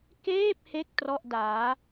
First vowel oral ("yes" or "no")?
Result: yes